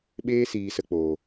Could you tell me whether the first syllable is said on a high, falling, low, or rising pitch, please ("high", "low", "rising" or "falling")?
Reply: high